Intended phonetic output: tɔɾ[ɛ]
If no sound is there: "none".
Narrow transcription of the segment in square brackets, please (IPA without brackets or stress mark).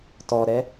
ɛ